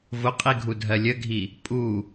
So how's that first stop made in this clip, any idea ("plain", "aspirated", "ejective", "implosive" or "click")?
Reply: ejective